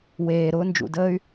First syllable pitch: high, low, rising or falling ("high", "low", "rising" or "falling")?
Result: low